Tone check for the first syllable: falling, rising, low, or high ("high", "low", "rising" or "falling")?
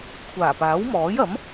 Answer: low